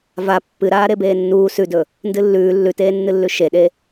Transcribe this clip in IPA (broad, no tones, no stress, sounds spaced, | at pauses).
v a pː ɨ ɾ aː ɾ e b eː nː uː s ʉ d ɵ | n d ɨ lː ʉː lː ʉ t eː nː ɨ lː ʉ ʃ e ɗ e